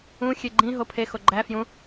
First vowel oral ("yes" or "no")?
no